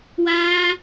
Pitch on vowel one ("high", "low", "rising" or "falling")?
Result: high